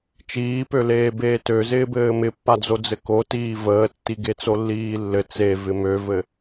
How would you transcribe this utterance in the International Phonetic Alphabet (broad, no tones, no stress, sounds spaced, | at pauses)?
t͡ʃ iː p ø l eː b eː t ø z ɪː b ɘː m ɪ pː a d͡z o d͡z ɘ k o t iː v əː tː i ɡ e t͡s o lː iː lː ɘ t͡s e v ɪ m ø v ɘ